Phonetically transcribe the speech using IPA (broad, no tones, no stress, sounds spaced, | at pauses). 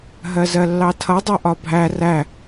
ɦ ɜ z ɜ lː ɑ tʰ ʌ dˤ ɜ ʔ ɒ bʱ æ r æ